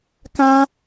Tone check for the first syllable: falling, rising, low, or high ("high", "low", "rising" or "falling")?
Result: high